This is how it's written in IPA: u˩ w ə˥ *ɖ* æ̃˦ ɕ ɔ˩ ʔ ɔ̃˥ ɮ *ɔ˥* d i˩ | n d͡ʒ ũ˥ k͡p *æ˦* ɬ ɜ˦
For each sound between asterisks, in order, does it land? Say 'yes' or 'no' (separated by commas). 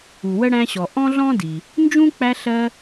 no, no, yes